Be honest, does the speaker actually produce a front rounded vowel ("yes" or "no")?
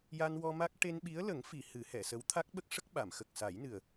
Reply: no